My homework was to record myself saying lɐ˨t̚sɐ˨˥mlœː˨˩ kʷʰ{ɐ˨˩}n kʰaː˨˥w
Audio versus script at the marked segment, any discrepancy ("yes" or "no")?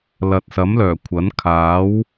yes